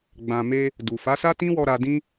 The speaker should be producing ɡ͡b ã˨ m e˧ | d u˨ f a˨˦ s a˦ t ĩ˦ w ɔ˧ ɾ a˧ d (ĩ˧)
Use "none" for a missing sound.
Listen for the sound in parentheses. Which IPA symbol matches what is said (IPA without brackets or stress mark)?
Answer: ĩ˦